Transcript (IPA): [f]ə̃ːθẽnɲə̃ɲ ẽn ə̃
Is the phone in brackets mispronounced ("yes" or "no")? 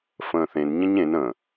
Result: no